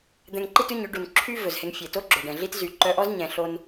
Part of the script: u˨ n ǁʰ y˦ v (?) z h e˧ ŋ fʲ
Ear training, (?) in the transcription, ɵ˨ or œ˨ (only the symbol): ɵ˨